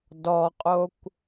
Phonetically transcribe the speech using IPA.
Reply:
dɔqʼokʷ

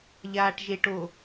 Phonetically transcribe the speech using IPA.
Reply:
ʎaːʈʒeʈo

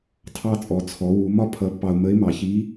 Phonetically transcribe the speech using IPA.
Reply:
tʰɑ˧t͡sʼɔ˩t͡sʰɔ˩˧wu˩˧ mɒ˥pʰʌ˧˥pːɑ˧ʊ̯ mə˧˥ɪ̯mɑ˩˧çi˧˥

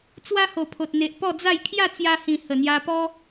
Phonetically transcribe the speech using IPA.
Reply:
t͡swa˦ho˨˩pʰo˨t̚n̪e˨ʔ pɔ˥˧d͡za˥˧j kʰja˥˧t͡sja˧hĩ˨˩ hə˨˩n̪ja˧pɔ˦

